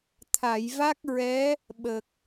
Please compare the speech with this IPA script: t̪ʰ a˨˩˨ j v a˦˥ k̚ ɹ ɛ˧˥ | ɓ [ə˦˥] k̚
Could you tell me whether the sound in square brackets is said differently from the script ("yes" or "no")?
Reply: yes